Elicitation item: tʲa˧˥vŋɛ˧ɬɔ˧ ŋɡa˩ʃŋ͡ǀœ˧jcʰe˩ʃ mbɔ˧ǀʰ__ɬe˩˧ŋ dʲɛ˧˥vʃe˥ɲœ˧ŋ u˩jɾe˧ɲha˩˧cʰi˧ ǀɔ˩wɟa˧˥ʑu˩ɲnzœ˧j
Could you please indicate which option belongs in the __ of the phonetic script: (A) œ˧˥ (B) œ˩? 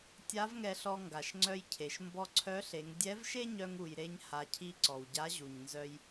A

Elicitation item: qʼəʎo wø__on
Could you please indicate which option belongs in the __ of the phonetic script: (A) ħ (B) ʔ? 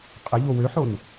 A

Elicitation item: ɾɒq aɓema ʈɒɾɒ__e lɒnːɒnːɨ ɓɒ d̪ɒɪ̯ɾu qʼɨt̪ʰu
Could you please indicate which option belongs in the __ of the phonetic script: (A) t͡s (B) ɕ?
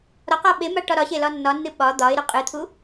B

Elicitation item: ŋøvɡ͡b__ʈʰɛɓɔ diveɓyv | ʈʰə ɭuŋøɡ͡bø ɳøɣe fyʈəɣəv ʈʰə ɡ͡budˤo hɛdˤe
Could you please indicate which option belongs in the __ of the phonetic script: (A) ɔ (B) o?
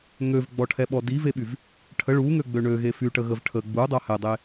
A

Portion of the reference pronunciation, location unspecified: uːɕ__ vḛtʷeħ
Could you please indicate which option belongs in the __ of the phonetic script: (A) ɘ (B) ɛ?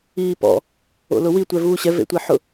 B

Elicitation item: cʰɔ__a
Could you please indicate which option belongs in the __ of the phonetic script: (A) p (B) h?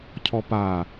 A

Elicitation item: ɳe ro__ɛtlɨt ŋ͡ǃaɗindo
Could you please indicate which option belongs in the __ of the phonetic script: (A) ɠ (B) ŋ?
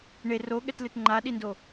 A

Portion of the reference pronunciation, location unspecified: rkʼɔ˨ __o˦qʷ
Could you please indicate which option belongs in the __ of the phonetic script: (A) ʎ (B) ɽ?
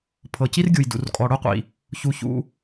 B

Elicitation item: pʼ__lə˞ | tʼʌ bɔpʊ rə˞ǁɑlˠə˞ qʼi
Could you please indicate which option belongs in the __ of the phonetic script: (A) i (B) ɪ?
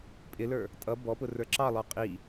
B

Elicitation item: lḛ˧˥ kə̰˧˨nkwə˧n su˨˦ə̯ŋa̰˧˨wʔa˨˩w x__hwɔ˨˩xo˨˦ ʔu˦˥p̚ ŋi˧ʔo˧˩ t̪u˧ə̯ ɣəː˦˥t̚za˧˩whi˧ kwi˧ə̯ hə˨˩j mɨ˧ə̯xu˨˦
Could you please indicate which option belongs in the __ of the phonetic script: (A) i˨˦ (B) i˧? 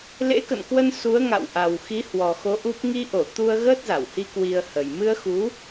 A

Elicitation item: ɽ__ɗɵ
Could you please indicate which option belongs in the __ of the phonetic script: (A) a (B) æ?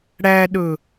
B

